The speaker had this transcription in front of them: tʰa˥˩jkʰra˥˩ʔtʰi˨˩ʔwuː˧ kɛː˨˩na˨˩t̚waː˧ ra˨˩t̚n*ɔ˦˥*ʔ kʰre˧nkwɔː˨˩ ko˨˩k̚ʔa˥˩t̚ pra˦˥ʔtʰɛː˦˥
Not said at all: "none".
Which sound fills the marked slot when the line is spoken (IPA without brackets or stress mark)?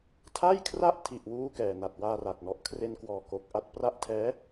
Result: ɔ˦˥